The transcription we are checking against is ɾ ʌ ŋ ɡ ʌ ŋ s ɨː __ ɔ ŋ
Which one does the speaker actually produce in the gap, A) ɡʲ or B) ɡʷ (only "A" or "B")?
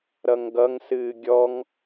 A